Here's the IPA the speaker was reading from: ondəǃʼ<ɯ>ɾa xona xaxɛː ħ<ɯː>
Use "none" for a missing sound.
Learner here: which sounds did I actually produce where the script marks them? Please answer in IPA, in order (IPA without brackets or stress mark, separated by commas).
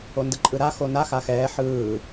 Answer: ɯ, ɯː